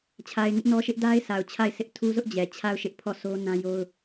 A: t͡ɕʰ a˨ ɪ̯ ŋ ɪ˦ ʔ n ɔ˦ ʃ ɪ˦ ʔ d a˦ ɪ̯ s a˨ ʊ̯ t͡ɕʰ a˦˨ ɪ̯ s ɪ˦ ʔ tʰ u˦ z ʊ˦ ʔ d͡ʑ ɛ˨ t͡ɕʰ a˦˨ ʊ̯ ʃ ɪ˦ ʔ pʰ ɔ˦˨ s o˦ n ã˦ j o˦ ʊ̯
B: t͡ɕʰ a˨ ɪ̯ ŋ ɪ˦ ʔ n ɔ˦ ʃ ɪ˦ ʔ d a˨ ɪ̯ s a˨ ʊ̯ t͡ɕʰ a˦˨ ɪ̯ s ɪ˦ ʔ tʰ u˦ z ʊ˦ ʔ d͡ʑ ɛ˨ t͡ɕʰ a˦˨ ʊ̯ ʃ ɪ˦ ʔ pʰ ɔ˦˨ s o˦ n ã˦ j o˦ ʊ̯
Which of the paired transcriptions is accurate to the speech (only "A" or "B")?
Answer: A